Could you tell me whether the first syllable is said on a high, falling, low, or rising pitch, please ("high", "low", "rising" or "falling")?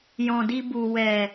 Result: low